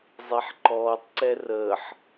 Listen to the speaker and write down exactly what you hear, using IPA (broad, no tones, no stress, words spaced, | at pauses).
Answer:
zˤeħǃɔːtˤǀɛ rəːħ